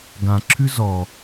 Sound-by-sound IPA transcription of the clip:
ɡ ã ǁʰ ʉ z ɔ

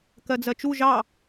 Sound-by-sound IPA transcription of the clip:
k ɜ d͡z ɜ t͡ʃ u ʒ ɑ

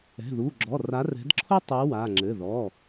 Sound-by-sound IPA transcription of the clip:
ɛ̤˩˧˩ ð u˩˧˩ ɡ͡ǁ ɔ˩˧˩ r a˨˥ r ɛ̤˨˥ d ǁʰ o˥ tˤ ɨ˨˥ w a˩˧˩ ŋ͡ǁ ɘ˩˧˩ ð ɔ˩˧˩

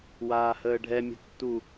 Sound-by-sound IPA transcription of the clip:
w aː h əː ɖʱ ɛ mʲ ə̤ tː u

